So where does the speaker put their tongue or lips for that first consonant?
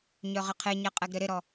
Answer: palate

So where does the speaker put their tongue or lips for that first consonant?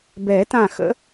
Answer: lips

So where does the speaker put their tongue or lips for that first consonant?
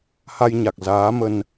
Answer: throat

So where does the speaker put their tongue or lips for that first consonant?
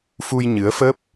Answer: lips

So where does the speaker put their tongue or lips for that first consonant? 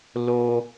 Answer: tongue tip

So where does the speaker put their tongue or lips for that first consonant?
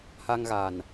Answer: throat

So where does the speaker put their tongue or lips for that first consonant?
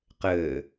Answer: uvula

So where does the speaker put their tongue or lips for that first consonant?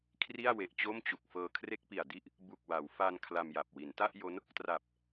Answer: velum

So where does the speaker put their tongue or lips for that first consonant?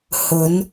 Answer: throat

